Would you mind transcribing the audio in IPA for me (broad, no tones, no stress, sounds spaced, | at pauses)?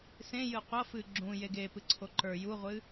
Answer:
s ẽ j ɨ qʷ ʌ f ɨ ɡ͡ǁ ũ j e ɡ e p ɨ ǀʰ o ǃ ə˞ j u ʁʷ ɨ